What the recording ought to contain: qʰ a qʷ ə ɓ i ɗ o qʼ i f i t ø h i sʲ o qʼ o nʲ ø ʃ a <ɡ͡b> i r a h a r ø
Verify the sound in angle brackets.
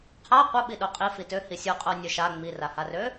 incorrect: ŋ͡m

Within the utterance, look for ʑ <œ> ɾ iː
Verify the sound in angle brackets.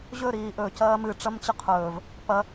incorrect: ɵ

